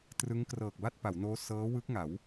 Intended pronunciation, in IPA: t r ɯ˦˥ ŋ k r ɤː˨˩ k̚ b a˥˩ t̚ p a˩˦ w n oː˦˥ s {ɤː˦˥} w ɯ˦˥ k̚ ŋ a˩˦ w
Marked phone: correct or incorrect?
correct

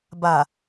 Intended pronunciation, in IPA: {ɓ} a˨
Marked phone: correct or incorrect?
incorrect: b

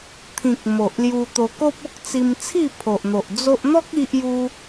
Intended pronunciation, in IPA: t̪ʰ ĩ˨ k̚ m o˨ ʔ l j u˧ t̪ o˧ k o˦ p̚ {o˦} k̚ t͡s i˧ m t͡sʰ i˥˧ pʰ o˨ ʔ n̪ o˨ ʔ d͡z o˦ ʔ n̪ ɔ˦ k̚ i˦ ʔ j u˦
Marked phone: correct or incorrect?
correct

